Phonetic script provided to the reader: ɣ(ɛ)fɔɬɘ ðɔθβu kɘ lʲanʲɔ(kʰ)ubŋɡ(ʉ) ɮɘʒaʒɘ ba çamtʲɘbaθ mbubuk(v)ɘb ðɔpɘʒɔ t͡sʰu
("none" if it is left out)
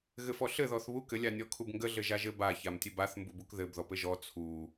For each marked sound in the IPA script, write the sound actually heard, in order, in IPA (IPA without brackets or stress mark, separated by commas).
ɘ, kʰ, ə, ð